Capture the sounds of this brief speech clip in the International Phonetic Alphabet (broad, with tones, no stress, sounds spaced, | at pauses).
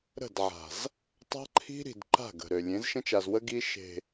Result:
ɾ ə̤˦˨ d ʕ a̤˨ z | tˤ a̤˦ ǃʰ i̤˦ ɾ i̤˨ d ǃ a̤˦˨ ɡ ə̤˨ ɾ ø˨ lʲ ẽ˨˦ z ʃ ə̃˦ t͡ʃ a˨ z w ə˦ ɡ i˦ ʃ e̤˨